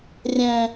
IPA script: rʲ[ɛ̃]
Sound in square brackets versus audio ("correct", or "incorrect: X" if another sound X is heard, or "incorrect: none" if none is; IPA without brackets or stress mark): correct